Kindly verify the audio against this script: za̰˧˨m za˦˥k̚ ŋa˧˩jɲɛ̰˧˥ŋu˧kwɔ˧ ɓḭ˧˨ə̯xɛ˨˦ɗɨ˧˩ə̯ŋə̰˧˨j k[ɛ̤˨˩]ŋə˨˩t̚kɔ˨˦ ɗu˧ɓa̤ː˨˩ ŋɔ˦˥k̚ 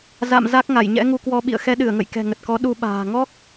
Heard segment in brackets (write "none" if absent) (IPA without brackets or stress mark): ɛ̤˨˩